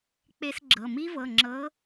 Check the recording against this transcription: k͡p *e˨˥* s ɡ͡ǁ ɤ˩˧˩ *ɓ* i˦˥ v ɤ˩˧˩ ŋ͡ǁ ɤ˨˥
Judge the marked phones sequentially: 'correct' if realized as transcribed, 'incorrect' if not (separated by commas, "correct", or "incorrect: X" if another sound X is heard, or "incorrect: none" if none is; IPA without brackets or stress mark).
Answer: incorrect: e˦˥, incorrect: m